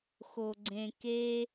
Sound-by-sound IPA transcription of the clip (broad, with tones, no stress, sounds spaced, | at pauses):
x o˨ ɡ͡ǀ ẽ˨ k e˧